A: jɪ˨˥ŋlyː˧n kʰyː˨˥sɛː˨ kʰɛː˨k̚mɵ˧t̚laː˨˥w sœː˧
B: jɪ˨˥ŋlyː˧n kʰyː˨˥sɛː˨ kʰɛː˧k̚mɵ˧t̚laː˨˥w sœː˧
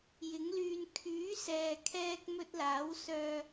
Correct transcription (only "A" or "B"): B